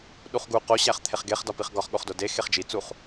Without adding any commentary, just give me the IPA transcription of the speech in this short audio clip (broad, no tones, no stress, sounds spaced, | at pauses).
ɗ u χ ɡ u q o ɕ æ χ t̪ʰ e χ ɡ e χ d ɒ p i χ ɡ ɒ χ ɠ o χ d o d e x e χ d͡ʒ i t͡s u χ